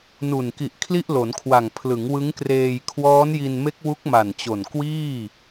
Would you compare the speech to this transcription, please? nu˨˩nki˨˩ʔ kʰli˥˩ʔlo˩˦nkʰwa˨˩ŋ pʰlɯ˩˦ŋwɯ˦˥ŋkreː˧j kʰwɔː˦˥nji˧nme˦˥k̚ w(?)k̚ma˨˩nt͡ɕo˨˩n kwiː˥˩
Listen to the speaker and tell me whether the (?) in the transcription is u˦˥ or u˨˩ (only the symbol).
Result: u˦˥